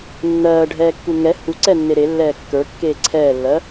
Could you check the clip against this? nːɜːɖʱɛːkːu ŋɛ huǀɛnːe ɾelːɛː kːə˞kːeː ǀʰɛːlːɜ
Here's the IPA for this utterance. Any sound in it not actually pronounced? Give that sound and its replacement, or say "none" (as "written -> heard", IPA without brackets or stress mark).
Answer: none